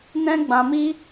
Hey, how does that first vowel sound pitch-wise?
high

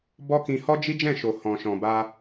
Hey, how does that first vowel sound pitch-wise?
high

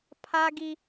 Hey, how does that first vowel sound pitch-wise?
high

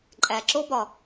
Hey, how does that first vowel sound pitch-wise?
low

